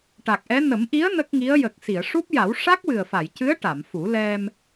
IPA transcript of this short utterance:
ʈ a˨˩ k̚ ʔ ɛ˧˥ n ə˨˩˦ m ʔ i˧˥ ə̯ n ə˦˥ k̚ ŋ i˧˥ ə̯ j ə˨˩ k̚ s i˨˩˨ ə̯ ʂ u˦˥ p̚ j a˨˩˦ w ʂ a˦˥ k̚ w ɨ˨˩ ə̯ f a˨˩˨ j c ɨ˧˥ ə̯ ʈ a˨˩˨ m f u˨˩˦ l ɛ˧ m

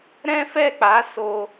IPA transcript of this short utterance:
ɾ ɛ̃˦ f ɛ˦˨ k͡p a˨˦ s o˧

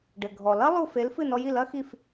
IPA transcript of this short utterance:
ɖ ɘ˩ ɡʱ ɔ˩ l ɐ˦˥ lˠ u˥˩ f e˨˥ l f ɨ˥˩ n ɔ˧ j i˥˩ l ɐ˦˥ x i˥˩ f

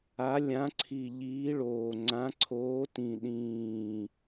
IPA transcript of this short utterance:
a˨˦ lʲ ã˨˦ ǀʰ i˨˩ ʎ iː˨˦ ɭ oː˨˩ ŋ͡ǀ ã˨˦ ǀʰ oː˨˦ t ĩ˨˩ ɗ ĩː˨˩

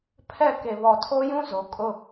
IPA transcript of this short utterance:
pʰ ɛ˦˨ k e˨ β ɔ˨ tʰ o˦ j ũ˦ z o˨ kʼ ʊ˦

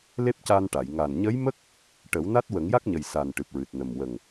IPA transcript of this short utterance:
l e˦˥ p̚ c a˧ n ʈ a˨˩˨ j ŋ a˨˩ n ɲ ə˧˥ j m ə˦˥ k̚ | ʈ ə˨˩˦ w n a˦˥ t̚ w ə˨˩˦ ŋ j a˦˥ k̚ ɲ ə˨˩ j s a˨˩ n ʈ ɨ˨˩ p̚ ɹ ɨ˨˩ t̚ n ə˨˩ m w ə˨˩ ŋ

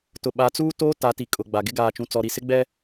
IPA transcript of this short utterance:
t ʊ˨ ɓ a˨˦ t͡s uː˦ t oː˦ t a˨˦ t i˨ kʼ ʊ˨ ɡ͡b a˨ ɡ ɪ˦ ɡ aː˨ t͡ʃ ũ˨ t͡s ɔ˨ ɾ i˨ s ɪ˦ ɡ͡b ɛ˦

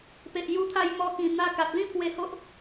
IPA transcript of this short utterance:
p e˨ ʔ j u˧ t̪ʰ a˧ j m ɔ˧ k ĩ˨˩ n̪ a˧ k a˨ t̚ l ĩ˦ pʰ w e˧ h o˦ ʔ

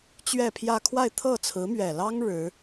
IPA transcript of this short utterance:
t͡ɕ ɥ ɛ˥˧ pʰ j ä˥˧ kʰ w a˥˧ ɪ̯ t̪ʰ ɤ˥˩ t͡sʰ ɹ̩˧˥ m ɥ ɛ˨˩ l ɑ˥ ŋ ɻ ɻ̩˧˥

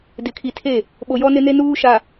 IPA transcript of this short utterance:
d ɪ˨ kʰ i˨ tʰ e˦˨ | ɓ o˨ j ɔ˦ n ɪ˦ n e˦ n uː˦ ʃ a˨

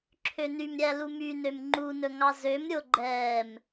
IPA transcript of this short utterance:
ǁʰ ø n y m ɾʲ æ l u m y n ø m ŋ͡ǃ u n ɵ ŋ ɑ z ø m ɾʲ o ɡ͡ǃ ɛː m

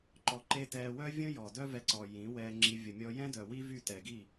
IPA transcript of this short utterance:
ǃ ɔ˧ ǃ e˦ t ɛː˧ w œ˦ vʲ ə̃˦ j ɔ˨ d œ˦ v ɛ˧ ǀ ɔ˨ j ĩ˨˦ w ɛː˧ ŋ͡ǁ i˧ vʲ ə˨ mʲ ɔ˧ j ɛ̃˦ d œ˨ w i˦ v y˦˨ t ɛ˨ ɡ i˦˨

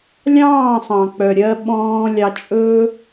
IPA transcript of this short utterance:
lʲ ɑ̃ː˦˨ sˤ ɑ̃˨ k͡p œ˨ ɾʲ ɜ˧ ɓ ɔ̃ː˧ lʲ ɑ˧ t͡ʃʼ ɵː˦

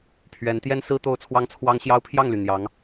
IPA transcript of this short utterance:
pʰ ɥ ɛ˧˥ n t̪ j ɛ˥ n s ɹ̩˥ t̪ o˥ ʊ̯ t͡sʰ w ɑ˥ ŋ t͡sʰ w ɑ˥ ŋ ɕ j ɑ˥ ʊ̯ pʰ j ɑ˥˩ ŋ l y˩ n̪ j ɑ˧˥ ŋ

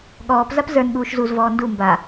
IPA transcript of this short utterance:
ɠ ɔː p z a p z ə˞ n ɠ uː ʃ z u z v ɔː n d u m b a

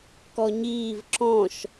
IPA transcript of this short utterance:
k ɔ ɲ iː v ǁ ɔ̃ ʃ

